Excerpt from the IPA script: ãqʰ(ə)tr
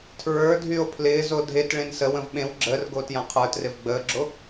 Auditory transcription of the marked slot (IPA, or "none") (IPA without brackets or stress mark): ə˞